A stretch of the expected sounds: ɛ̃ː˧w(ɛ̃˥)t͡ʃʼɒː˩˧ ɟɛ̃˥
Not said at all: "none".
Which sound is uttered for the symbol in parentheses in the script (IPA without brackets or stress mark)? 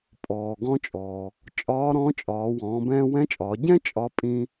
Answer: ɛ̃˧˥